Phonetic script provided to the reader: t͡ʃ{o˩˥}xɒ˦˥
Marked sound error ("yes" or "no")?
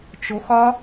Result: no